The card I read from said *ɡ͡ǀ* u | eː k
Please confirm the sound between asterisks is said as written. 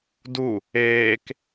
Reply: no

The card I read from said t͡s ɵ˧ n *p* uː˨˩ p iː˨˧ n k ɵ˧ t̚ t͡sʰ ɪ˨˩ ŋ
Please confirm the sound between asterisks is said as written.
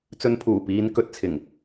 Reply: no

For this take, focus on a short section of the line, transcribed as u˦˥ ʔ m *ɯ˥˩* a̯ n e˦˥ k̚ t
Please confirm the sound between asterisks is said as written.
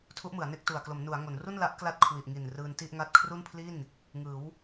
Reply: no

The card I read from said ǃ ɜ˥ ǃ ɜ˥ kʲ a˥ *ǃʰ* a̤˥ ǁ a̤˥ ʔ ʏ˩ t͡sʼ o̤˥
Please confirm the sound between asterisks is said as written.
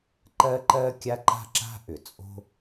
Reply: no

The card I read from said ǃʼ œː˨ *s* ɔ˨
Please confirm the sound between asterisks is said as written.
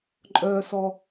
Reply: yes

